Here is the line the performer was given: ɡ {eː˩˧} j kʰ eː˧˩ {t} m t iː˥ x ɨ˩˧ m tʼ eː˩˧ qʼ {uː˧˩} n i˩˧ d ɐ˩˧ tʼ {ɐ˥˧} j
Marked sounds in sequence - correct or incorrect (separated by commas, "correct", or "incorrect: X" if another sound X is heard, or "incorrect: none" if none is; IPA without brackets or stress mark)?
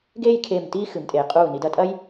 incorrect: eː˥˧, incorrect: none, correct, incorrect: ɐ˥